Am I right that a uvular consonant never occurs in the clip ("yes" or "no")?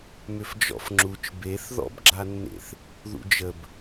yes